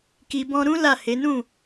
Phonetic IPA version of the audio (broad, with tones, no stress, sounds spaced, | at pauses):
k i˧ b ɔ̃˦ ɾ ũ˦ l a˦˨ h e˨˦ n ũ˦˨